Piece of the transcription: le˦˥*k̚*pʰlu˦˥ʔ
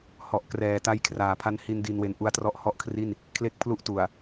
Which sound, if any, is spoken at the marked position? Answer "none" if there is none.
k̚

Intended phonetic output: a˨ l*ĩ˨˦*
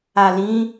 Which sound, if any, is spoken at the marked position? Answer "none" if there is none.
ĩ˨˦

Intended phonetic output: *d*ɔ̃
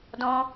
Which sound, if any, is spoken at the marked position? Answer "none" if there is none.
d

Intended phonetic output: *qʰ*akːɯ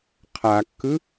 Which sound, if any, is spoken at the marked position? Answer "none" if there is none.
qʰ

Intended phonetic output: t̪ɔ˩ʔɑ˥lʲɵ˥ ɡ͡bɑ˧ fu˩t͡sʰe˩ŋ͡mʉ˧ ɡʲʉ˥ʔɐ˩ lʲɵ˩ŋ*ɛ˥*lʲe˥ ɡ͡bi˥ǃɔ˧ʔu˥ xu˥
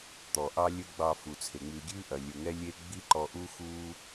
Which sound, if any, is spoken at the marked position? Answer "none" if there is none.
ɛ˥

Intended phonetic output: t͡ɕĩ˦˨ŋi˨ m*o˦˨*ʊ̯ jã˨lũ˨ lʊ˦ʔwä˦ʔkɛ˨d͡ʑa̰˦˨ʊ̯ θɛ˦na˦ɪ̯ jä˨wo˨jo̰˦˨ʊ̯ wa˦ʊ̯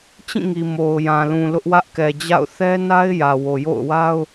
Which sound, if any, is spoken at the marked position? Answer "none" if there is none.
o˨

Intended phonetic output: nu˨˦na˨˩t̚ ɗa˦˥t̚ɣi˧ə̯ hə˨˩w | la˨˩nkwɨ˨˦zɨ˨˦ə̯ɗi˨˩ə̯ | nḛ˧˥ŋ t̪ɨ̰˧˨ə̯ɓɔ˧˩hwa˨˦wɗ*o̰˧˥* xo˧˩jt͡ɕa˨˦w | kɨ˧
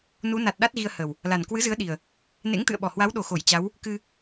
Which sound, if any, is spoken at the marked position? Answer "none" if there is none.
o˨˩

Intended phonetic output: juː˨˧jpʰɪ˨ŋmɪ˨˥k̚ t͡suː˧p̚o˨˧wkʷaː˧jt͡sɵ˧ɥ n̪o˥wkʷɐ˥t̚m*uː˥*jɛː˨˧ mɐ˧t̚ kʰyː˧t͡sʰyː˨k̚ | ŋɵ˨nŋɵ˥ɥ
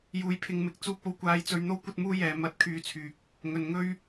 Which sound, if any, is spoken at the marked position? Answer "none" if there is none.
uː˥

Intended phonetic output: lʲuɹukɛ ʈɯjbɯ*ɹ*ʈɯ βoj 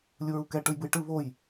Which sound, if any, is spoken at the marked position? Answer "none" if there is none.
j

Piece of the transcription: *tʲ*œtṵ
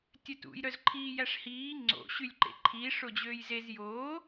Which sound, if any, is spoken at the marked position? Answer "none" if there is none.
tʲ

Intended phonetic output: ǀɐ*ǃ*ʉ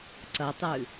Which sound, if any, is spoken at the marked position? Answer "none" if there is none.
tˤ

